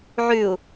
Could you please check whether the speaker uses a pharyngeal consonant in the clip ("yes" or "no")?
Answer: yes